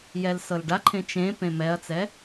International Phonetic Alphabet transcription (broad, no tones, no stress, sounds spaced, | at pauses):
j ɛ l s ɤ l ɖ a ǃʰ ẽ t͡ʃ ẽ p ẽ m ɛ ɐ̯ t͡s ɛ